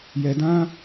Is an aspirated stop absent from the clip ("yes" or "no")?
yes